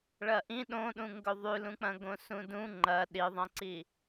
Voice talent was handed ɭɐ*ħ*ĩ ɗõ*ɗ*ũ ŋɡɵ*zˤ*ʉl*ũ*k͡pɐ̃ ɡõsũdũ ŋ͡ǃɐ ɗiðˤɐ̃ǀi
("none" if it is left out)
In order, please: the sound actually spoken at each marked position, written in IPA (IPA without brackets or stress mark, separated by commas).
ʔ, ɗ, ðˤ, ũ